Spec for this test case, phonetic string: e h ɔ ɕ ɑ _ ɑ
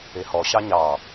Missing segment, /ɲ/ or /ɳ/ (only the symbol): ɲ